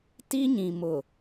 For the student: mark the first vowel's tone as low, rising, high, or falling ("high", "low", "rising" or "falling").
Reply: high